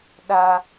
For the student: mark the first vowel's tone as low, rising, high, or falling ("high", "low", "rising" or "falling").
high